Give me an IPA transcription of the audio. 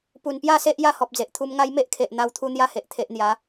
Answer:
p u˨˩ n p j a˥˧ s e˦ ʔ j a˦ h ɔ˨ p̚ d͡z e˨ ʔ t̪ʰ u˧ m ŋ a˦ j m e˦ ʔ kʰ e˨ ʔ n̪ a˧ w t̪ʰ u˦ n̪ j a˦ h e˨ ʔ t̪ʰ e˨ ʔ n̪ j a˨˦

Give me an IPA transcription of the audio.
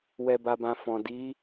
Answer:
w ɛ˨ b a˨ b ã˨ f ɔ̃˨ d i˨˦

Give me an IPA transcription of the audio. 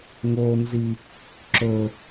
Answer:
ŋ o n z i | ǁ ɵ

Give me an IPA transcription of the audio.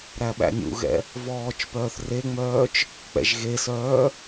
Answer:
ɾ æ ɓ æ̰ nʲ ṵ ɣ ɛ̰ | v ɔː t͡ʃ p œː θ r e ŋ͡m œː t͡ʃ | k͡p ɛ̰ ʒ ɣ e s œː

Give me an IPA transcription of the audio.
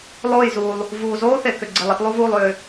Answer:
lˠ oː˥˨ j z uː˨ lˠ | v uː˨ z oː˥ θ e˨ k ʏ˨ ɡ͡ǀ e˨ lˠ e˥ t lˠ u˥ v uː˥˨ lˠ ʏː˨

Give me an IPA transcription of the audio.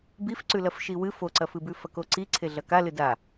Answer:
b i f ǀ ʉ l ɐ f ʃ i w ɨ f o ǀ ɐ f ɨ b ʉ f ɐ k o ǀ i ǀʰ e ɮ ɐ k a l ɨ d a

